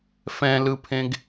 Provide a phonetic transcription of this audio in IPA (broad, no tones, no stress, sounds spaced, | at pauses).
f ɛ̃ l ɯ pʰ ẽ ɡ